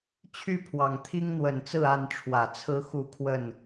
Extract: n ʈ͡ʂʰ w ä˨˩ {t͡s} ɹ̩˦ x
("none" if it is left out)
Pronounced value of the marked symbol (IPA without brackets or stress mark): t͡sʰ